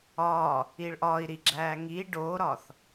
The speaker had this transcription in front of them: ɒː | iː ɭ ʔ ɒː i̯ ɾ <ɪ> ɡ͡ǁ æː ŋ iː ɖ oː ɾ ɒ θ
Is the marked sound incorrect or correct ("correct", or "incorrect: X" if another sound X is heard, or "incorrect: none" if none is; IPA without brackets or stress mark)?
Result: incorrect: i